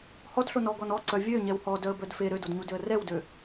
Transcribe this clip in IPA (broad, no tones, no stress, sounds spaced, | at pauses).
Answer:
h ɔ d ɬ o n ɔ ɡ ɔ n ɔ ǀ œ vʲ ø ɲ ɛ w h ɔ d œ ə̯ b œ d f e ɾ ø d o d ɲ u d ø ə̯ r ɛ w d ø